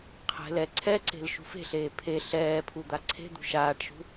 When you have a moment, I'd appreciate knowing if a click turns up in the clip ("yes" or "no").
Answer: yes